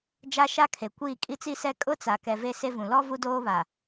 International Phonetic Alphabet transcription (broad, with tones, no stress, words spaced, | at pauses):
d͡ʒa˦ʃa˦kʰe˨kʷiː˦˨ kʼi˦t͡si˦sɛ˦ kʼʊ˦t͡sa˨ kɛ˨ ve˦se˦vũ˨ lɔ˦ vu˦doː˦βa˨